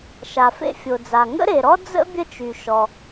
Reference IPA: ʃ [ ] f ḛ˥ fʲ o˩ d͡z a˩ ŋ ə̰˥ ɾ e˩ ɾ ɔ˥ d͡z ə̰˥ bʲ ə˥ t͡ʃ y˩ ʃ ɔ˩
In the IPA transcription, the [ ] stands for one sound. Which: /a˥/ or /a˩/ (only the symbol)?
a˩